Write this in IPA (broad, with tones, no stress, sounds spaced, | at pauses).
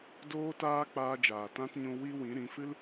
d oː˦ t aː˦ k͡p aː˧ d͡ʒ aː˨ t ã˦ t ɲ ũ˧ w i˦ w ĩ˨˦ ɾ ĩ˨˦ f ɨ˦ l